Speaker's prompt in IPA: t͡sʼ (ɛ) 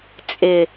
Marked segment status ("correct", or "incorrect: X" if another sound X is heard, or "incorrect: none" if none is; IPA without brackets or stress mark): incorrect: ɪ